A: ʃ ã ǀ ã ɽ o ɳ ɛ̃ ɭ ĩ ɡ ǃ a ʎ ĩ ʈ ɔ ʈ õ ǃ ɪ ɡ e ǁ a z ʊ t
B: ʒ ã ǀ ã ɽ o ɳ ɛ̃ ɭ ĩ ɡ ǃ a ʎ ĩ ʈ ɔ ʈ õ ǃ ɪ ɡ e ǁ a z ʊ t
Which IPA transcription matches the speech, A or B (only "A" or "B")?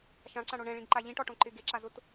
A